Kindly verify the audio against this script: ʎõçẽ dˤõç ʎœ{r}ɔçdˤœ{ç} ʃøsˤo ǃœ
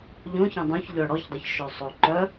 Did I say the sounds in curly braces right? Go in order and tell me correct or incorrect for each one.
incorrect: ɽ, correct

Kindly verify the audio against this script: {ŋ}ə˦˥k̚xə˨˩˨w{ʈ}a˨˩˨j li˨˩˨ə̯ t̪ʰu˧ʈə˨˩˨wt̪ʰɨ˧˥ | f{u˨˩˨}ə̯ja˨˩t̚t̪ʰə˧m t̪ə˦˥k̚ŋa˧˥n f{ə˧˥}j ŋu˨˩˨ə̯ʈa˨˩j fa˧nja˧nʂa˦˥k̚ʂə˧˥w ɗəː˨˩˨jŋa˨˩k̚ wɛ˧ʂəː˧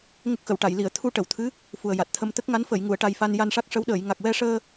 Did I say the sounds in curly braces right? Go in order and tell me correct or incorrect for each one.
correct, correct, incorrect: u˨˩, incorrect: ə˨˩˨

